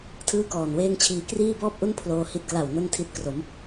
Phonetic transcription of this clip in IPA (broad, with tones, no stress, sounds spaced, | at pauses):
tʰ ɯː˥˩ k ɔː˨˩ n w eː˥˩ ŋ t͡ɕʰ iː˦˥ k r iː˥˩ b ɔː˥˩ p̚ ʔ u˥˩ n pʰ l oː˧ h i˦˥ t̚ k l a˨˩ w n o˥˩ n tʰ i˦˥ t̚ k r o˩˦ m